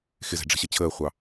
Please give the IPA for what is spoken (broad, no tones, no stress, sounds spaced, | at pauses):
x ɪ z ɛ̤ ɖ͡ʐ ə̤ ɕ ə t͡ɕʰ əː χʷ ɑ